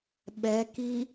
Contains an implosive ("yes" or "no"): yes